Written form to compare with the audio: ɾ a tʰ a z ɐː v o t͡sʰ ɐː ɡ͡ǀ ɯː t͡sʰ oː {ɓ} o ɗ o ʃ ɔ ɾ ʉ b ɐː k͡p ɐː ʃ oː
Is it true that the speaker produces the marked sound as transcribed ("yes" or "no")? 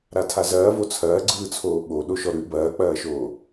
yes